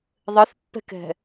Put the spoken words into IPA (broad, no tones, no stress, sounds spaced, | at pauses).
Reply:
ðˤ ɘ θ pː ɛ̤ k ɛ̤